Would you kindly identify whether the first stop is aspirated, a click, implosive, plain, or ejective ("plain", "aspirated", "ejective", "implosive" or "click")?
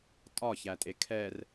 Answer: ejective